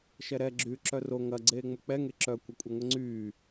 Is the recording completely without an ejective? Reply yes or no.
no